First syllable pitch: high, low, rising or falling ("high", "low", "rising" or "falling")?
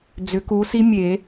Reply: rising